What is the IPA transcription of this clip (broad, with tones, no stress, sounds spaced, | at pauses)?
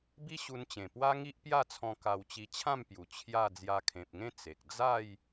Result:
b i˦ ɕ u˧ n t͡ɕ ẽ˨˩ p w a˦ ŋ i˦ ʔ p j a˥˧ t͡sʰ ɔ̃˧ k a˧ w t͡ɕ i˧ t͡ɕʰ ã˥˧ m p j u˨˩ t͡ɕʰ j a˥˧ d͡z j a˧ kʰ ẽ˨ p̚ ŋ ẽ˥˧ t͡s e˨ k̚ d͡z a˥˧ j